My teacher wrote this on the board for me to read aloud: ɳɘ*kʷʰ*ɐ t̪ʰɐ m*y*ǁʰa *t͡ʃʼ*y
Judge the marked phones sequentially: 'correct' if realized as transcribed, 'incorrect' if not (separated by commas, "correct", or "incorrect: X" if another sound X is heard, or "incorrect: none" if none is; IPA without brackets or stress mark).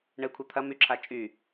correct, correct, correct